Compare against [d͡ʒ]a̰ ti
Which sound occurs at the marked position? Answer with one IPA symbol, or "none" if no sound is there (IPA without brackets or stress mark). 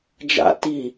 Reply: d͡ʒ